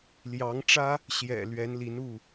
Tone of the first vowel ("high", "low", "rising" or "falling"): rising